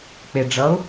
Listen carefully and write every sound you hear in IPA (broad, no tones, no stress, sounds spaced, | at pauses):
k͡p e ɖ͡ʐ ʌ ʊ̯